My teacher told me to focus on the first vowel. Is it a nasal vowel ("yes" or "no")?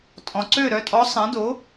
yes